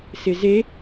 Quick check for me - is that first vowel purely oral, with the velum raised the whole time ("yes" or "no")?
yes